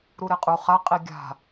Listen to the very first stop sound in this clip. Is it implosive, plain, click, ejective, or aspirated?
ejective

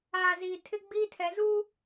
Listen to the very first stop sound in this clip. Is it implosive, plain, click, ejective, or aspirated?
aspirated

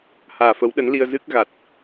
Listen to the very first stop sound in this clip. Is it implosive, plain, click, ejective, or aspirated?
implosive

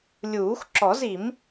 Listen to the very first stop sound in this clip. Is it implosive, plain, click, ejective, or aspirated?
click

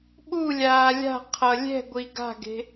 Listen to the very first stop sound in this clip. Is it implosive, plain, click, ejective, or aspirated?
implosive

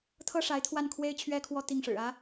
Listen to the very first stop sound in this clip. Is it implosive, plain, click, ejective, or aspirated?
aspirated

